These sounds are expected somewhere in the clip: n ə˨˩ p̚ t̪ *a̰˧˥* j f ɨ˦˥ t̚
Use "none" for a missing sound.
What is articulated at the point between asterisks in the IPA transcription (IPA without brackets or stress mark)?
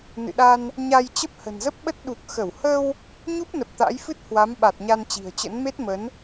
a̰˧˥